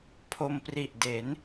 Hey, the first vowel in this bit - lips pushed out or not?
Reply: yes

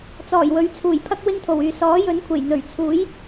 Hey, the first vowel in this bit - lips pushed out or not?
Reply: yes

